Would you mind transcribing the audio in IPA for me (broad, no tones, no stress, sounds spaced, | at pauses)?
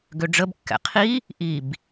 ɡ ø ɖ͡ʐ ə b kː ɛ̰ qʰ i | ʔ i b